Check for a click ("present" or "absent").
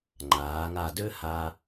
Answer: present